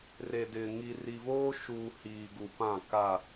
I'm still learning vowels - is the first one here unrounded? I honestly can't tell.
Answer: yes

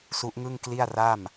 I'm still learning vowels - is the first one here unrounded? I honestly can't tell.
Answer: no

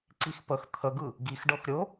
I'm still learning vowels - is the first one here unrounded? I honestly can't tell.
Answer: yes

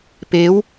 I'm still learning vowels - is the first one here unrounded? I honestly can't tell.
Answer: yes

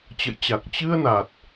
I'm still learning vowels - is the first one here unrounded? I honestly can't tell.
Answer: yes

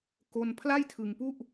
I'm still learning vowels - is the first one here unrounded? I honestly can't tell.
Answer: no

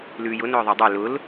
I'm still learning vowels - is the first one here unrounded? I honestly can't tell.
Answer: no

